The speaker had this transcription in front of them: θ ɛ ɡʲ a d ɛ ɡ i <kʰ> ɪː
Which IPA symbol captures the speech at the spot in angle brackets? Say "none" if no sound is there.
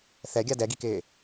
k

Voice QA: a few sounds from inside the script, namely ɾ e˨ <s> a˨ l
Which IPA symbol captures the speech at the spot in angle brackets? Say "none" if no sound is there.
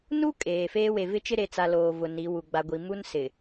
t͡s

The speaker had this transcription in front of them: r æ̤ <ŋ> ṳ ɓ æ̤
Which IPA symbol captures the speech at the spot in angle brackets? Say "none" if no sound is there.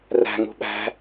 ŋ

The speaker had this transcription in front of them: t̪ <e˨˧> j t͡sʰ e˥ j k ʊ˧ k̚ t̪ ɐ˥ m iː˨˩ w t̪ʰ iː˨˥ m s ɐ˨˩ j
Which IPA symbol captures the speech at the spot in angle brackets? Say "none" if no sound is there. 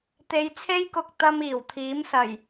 e˨˧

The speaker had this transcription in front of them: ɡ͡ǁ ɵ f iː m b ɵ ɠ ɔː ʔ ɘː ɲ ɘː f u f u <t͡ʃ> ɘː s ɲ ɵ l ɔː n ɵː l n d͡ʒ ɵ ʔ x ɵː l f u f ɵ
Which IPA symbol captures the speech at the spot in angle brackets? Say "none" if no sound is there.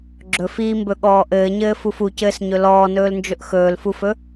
c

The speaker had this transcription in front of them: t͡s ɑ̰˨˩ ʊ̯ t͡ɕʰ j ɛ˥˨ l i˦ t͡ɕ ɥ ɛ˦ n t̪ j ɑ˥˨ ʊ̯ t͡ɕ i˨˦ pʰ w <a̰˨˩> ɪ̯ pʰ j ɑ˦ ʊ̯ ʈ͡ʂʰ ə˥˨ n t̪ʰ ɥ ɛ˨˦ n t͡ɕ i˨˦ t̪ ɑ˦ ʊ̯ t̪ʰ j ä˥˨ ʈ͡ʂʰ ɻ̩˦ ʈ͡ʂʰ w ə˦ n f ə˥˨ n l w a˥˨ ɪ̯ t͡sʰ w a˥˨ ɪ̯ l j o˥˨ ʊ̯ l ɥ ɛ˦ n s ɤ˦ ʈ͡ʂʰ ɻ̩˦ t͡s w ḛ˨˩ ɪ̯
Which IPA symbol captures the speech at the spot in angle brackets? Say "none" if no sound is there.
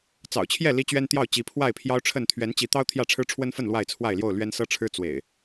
a˥˨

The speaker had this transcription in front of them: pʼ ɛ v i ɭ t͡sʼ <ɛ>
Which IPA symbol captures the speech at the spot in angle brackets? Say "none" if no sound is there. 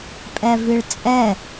ɛ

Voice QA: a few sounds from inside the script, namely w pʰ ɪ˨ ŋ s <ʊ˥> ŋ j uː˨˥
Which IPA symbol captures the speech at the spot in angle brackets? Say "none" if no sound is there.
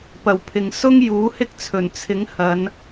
ʊ˥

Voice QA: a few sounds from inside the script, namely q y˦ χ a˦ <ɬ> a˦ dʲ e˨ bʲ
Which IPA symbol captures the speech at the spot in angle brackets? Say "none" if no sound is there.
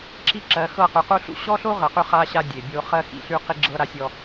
ɕ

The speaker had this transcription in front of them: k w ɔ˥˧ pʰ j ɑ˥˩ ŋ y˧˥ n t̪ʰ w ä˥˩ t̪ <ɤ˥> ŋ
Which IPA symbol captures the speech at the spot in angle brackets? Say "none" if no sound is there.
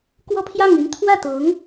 ɤ˧˥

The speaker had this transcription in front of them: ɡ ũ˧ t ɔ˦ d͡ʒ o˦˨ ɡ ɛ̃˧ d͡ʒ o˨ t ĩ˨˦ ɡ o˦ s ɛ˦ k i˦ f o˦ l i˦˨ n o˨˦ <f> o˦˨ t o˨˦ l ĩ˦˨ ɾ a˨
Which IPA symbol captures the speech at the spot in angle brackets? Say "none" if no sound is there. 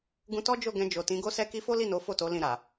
f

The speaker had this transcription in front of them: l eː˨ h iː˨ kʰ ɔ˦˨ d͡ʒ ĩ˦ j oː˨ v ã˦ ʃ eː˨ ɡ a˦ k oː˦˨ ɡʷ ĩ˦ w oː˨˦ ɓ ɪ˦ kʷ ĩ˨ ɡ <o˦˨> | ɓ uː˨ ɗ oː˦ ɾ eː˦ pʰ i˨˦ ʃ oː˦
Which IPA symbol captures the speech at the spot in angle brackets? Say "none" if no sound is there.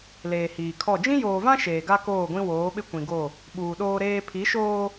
o˦˨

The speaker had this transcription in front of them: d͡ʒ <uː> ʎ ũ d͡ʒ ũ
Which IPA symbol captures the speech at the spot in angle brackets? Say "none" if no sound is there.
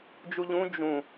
u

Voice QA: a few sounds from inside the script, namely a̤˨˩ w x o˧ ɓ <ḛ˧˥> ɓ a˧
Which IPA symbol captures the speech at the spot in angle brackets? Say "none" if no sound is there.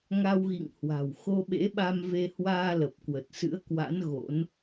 ḛ˧˥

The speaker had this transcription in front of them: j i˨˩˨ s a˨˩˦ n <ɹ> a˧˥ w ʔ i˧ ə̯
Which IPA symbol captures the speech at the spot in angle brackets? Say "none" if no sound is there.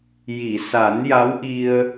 j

